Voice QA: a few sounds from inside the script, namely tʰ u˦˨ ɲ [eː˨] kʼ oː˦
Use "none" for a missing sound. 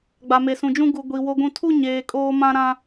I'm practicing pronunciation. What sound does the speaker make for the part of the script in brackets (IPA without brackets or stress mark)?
eː˨